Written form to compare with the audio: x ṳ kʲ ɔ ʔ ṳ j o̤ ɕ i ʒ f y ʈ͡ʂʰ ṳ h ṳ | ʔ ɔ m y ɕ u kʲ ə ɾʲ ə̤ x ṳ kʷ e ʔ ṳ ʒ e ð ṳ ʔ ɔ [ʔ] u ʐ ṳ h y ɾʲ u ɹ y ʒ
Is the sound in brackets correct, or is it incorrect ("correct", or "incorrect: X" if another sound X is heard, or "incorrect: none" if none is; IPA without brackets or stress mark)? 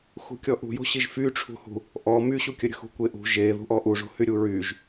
correct